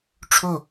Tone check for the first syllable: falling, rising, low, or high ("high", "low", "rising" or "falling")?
falling